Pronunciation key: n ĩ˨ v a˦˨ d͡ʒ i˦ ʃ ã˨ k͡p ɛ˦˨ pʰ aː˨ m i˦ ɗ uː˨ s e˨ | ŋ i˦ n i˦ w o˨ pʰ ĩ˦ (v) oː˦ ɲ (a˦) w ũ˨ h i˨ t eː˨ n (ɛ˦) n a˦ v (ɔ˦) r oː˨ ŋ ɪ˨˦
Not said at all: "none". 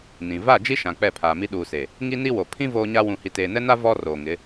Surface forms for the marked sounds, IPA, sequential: v, a˦, ɛ˦, ɔ˦

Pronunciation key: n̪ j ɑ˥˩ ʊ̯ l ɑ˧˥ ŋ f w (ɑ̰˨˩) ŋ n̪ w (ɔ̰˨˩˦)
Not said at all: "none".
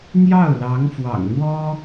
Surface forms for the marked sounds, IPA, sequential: ɑ̰˨˩, ɔ˥

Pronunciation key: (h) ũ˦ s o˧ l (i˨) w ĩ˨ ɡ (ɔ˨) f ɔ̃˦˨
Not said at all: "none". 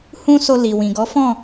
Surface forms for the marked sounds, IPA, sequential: h, i˨, ɔ˨˦

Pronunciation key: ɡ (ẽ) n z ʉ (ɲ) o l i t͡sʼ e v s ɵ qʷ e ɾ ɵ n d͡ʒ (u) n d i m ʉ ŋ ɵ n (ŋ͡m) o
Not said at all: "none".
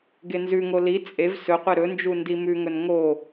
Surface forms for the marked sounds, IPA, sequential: e, ŋ, u, ŋ

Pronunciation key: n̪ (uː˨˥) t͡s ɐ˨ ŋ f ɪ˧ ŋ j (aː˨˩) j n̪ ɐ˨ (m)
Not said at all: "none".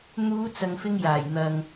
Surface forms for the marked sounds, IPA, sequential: uː˨˧, aː˨˩, ŋ

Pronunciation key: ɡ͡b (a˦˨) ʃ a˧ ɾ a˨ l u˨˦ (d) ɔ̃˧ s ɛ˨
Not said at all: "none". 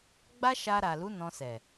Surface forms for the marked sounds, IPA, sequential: a˦, n

